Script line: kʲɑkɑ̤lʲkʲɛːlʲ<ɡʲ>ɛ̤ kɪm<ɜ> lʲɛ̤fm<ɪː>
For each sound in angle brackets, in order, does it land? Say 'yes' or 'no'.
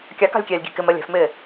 yes, yes, yes

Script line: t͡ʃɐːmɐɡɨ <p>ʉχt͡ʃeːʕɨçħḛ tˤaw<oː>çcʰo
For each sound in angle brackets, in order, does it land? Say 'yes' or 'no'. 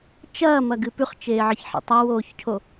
yes, yes

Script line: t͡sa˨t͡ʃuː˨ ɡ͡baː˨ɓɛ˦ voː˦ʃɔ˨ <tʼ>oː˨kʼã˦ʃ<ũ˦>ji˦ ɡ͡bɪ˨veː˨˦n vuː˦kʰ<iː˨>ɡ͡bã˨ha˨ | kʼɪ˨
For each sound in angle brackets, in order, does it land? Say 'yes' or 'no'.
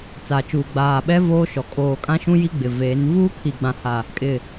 no, yes, no

